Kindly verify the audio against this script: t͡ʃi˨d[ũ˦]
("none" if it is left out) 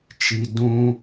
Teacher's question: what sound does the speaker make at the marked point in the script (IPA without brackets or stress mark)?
ũ˦